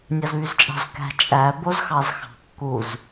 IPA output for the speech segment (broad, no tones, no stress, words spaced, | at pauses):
nʲɑzβyzt͡ʃʼɑ̤zkæ̤ t͡ʃʼæ bozxɑzxɑ̤kːuz